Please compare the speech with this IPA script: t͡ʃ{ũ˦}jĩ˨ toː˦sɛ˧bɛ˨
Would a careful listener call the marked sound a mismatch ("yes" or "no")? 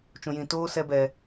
yes